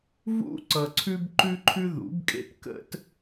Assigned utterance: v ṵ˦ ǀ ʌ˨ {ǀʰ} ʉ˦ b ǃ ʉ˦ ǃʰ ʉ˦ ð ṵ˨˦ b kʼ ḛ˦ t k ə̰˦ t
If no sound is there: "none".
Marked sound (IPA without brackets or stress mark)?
ǀʰ